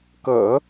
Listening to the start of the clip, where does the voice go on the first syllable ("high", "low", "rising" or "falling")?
low